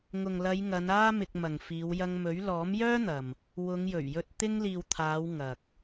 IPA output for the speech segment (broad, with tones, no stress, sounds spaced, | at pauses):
ŋ ʊ˨ ŋ l ɐ˨˧ j ŋ ɐ˨˧ n aː˥ m ɪ˧ k̚ m ɐ˨ ŋ f iː˨˧ w j ɐ˧ ŋ m ɵ˨˥ ɥ l ɔː˨˥ m j œː˥ n̪ ɐ˨ m | w ʊ˨˧ ŋ j ɵ˨˩ ɥ j ɵ˧ t̚ t̪ ɪ˧ ŋ l iː˨ w t̪ʰ aː˨˧ w ŋ ɐ˨ k̚